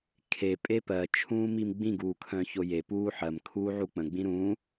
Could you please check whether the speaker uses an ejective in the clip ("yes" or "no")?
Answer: yes